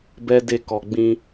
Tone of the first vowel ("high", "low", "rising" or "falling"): high